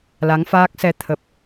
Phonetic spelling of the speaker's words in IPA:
l a˨˦ ŋ f aː˦˥ k̚ s ɛ˧ t̪ʰ ə˨˩ p̚

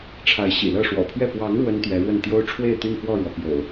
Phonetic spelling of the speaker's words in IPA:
ʈ͡ʂʰ a˨˦ ɪ̯ ɕ ḭ˨˩ l ɤ˥˨ ʂ w ɔ̰˨˩ pʰ ɥ ɛ˥˨ p w ɑ˨˦ ŋ ɻ w ə˦ n t̪ ɥ ɛ˨˦ ɻ w ə˥˨ n t̪ j o˦ ʊ̯ ʈ͡ʂʰ w e˥˨ ɪ̯ t̪ y˥˨ n f w ɔ˥˨ ɻ w ɔ˩ p j o̰˨˩ ʊ̯

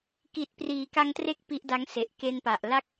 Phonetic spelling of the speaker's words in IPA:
k i˨˩ t̚ p r iː˩˦ k a˧ ŋ t r e˦˥ k̚ p i˦˥ ʔ d a˦˥ ŋ s e˨˩ ʔ k e˧ n p a˨˩ ʔ l a˥˩ k̚

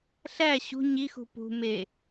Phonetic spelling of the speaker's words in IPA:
ɬ æ ɕ ṳ ɲ i x ṳ p ṳ m e

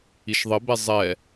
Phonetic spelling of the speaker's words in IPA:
i ʃ ðˤ ɘ b ɛ zˤ ɛ

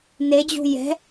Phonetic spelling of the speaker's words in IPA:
n e d͡ʑ ṳ j ɛ̤

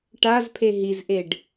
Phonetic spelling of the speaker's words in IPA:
ʈ a z pʰ e ɦ i z ʔ e ɖ

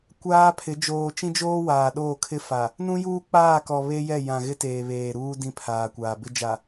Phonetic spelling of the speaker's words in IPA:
kʷ aː˦ pʰ ɪ˨˦ d͡ʒ oː˨ t͡ʃ ĩ˦ d͡ʒ oː˦ w aː˨ ɗ oː˦˨ kʰ ɪ˦ f a˨ | n ũ˦ j uː˦ k͡p aː˦˨ k ɔ˨ β e˦ j ɛ˦˨ j ã˨ ɣ ɪ˦ t eː˨ β eː˨ ɾ uː˦ d ĩ˦ pʰ aː˨ kʷ aː˨ b ɪ˦ d͡ʒ a˨

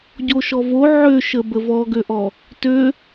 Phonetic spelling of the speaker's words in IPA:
ɟ o ʃ ɔ v o ʕ ø ʃ ə b ə v ɔ ɡ ø ʔ ɔ | t ø

